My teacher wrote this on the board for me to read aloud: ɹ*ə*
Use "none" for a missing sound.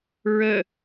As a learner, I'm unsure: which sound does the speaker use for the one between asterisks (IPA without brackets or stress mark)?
ə